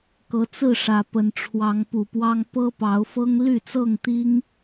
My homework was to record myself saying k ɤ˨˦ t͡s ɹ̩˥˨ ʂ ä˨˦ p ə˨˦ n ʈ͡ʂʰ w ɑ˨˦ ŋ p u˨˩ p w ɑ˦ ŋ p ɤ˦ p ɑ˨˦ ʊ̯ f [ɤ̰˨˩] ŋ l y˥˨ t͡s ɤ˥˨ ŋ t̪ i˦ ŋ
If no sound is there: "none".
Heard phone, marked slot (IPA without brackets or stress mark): ɤ˦